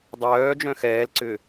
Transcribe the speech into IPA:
dˤ œː d͡ʒ œ̃ x ɛː l ǀ ʏ

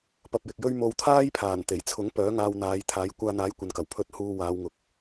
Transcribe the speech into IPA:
p ɐ˧ p̚ j ɪ˨ k̚ j ɵ˥ ɥ m o˧ w t̪ʰ aː˥ j pʰ aː˨˩ n t̪ e˨˩ j t͡sʰ ʊ˨˥ ŋ p œː˨˥ ŋ aː˧ w n̪ aː˨˧ j t̪ʰ aː˨˥ j kʷ aː˧ n̪ aː˨˥ j kʷ ɐ˨ n k ɐ˨˩ w pʰ ɵ˨˥ t̚ h uː˧ w aː˨˧ w ŋ ʊ˨ k̚

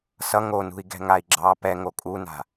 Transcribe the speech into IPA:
s ʌ ŋ o n ṳ i̯ ɡ ɛ̤ ŋ a i̯ ɡ͡ǁ ɑ p ɛ ŋ o kʼ u n a̤

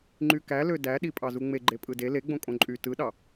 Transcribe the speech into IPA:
ŋ͡ǃ y k æ l ø d æ ɗ i pʼ ɑ z u ŋ͡m e ɡ͡ǃ e pʼ ɯ d e l e ɡ͡b õ kʼ õ ǃʼ y t ɯ ɗ ɑ

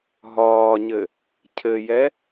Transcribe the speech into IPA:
ɦ ɒː ɲ ɘ | cʰ ɘ j ɛ

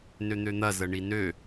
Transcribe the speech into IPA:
n ø n̪ ø n̪ ɐ z ə ɳ i n ø

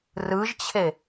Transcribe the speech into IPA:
r ɯ ʒ t͡ɕʰ e

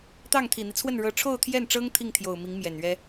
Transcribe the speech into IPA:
t̪ ɑ˥˩ ŋ t̪ʰ i˨˩ n̪ i˦ t͡sʰ w ə˥˩ n ɻ ɤ˧˥ ʈ͡ʂʰ o˥˧ ʊ̯ t̪ʰ j ɛ˥˩ n ʈ͡ʂ ɤ˥ ŋ t̪ʰ i˥˩ ŋ t̪ʰ j o˨˩ ʊ̯ m i˧˥ ŋ m j ɛ˨˩ n ɥ ɛ˥

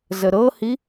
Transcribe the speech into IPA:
z ə ɾ ɤ h i

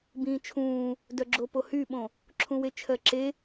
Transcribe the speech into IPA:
b ĩː t͡ʃʰ ũː | d œ ɡ͡ǁ o p o h y ɓ õ | ǁʰ ũ w e t͡ʃʰ ɜ ǁ e

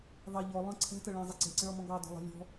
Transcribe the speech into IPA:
ðˤ ɛ ʎ ɔ lˠ ə̃ ǀʰ ɛ̤ t ə ɭ ɛ̃ zˤ i ǀ ɛ̤ ǀ ə̃ ɭ ɔ m ɔ̃ ɡ ɑ d ɔ̤ lˠ ɛ̤ lʲ ɔ̤

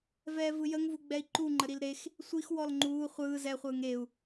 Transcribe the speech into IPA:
v ɛː v ɯ j ə ŋ v u ɡ͡b ɛ i̯ ǃ u ŋ͡ǃ ə ɾ i l ɾ e x | sʷ i x w ɔ l ŋ͡ǃ uː χʷ ɯː z ɛ χʷ ɯː ŋ e u̯

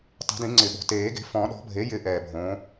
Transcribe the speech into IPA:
tˤ e̤˨˩˦ d ĩ˨˩˦ ŋ͡ǀ ɪ˨˩ ɓ o̤˨˩ t eː˨˩˦ ɡ e̤˩˥ f ɔ̃˨˩˦ ɗ ɔ̤˩˥ bʱ e˩˥ j ɪ˨˩˦ ʔ ɛː˨˩ bʱ õː˩˥

